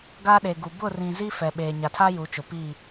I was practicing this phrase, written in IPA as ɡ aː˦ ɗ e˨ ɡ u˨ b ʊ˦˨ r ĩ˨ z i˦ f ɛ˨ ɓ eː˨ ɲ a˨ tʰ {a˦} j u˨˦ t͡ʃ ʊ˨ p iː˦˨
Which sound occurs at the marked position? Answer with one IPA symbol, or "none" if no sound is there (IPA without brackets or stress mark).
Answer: a˦